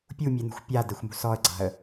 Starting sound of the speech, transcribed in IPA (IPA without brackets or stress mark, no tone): pʲ